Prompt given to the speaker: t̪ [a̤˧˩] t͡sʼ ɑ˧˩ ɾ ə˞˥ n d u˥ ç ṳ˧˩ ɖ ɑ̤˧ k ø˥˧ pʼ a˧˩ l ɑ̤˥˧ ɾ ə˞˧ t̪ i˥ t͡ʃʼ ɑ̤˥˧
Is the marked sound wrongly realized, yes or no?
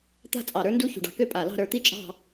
yes